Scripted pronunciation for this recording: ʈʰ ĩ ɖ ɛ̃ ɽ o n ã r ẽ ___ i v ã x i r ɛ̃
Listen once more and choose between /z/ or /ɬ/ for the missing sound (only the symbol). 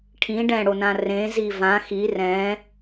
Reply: z